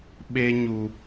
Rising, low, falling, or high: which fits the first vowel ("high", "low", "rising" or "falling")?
high